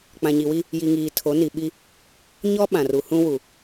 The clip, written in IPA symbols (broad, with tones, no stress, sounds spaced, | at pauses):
k͡p ã˨ ɲ i˨ w i˦ | j i˨ ŋ iː˨ tʰ o˨˦ n i˨ ɓ i˦ | ɲ ɔ˦ ɓ ã˨ r u˨ h ũ˦ w u˨